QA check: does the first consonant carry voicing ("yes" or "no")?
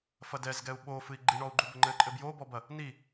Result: no